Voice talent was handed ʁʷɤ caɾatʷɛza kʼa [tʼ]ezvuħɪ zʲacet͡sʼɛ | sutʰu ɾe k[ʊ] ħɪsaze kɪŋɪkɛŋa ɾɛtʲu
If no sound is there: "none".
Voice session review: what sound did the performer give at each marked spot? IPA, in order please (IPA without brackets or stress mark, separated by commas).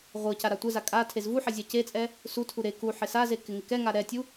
tʰ, u